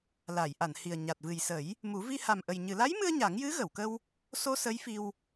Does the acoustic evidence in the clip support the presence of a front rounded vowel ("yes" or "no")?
no